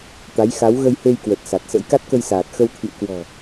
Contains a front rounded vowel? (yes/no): no